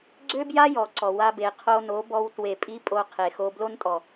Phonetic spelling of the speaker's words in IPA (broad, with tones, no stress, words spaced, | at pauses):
ɡ͡ǀø˦bja˦jɔ˨ ǀɔ˨wa˧be˨ qʰo˧no˨˦bɔ˧w twe˨pʼi˧ pʼo˧qʰe˨xo˧ blo˦ntʼɔ˨